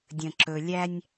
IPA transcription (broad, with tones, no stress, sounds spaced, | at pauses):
dʲ ə̃˨ ǁ ɵ˨ lʲ æ˦ nʲ